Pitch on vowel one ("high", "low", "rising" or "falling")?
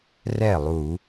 falling